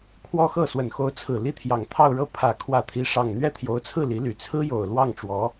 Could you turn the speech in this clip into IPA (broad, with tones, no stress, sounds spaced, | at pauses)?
kʰ w ɔ˥ x ɤ˥˩ s w ə˨˩ n x o˧˥ ʊ̯ t͡sʰ ɹ̩˨˩ l i˥˩ t̪ʰ j ɑ˨˩ ŋ t̪ʰ ɑ˥˧ ʊ̯ ɻ ɤ˥˩ pʰ ä˨˩ kʰ w ä˥˩ t̪ʰ i˥ ʂ ɑ˥˧ ŋ n̪ ɥ ɛ˥˩ t̪ʰ j o˧˥ ʊ̯ t͡sʰ ɹ̩˥˩ l i˧˥ l y˨˩ t͡sʰ ɹ̩˥ j o˨˩ ʊ̯ l w ɑ˥˩ ŋ ʈ͡ʂ w ɔ˧˥